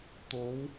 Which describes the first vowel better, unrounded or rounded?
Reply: rounded